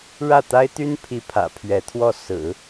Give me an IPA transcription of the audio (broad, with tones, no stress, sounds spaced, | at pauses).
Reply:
ɻ ä˥˩ t̪ a˥ ɪ̯ t̪ y˥ n pʰ i˥ pʰ ä̰˨˩ pʰ ɥ ɛ˧˥ t̪ʰ w ɔ˥˩ s ɹ̩˨˩˦